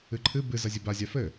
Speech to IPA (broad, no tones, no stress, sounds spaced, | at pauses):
ɨ ǃʰ ɨ b ɨ z ɐ zʲ ɘ b a zʲ a f ɘ